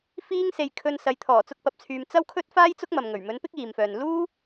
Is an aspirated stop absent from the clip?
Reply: no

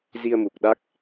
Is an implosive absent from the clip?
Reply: no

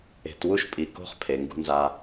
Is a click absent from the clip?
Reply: yes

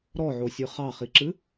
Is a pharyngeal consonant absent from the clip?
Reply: no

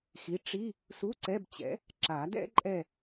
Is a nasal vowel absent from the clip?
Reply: yes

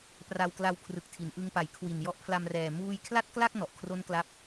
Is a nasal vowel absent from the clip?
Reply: yes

